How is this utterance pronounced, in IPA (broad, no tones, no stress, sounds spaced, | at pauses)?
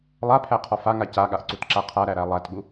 lˠ a pʰ æ qʰ ɔ f a ŋ a c a ɠ a ʔ ǀ u t ǁ a qʰ a ɾ æ ɾ æ lˠ æ t ɠ u